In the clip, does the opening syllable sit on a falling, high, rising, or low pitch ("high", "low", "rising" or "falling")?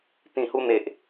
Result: low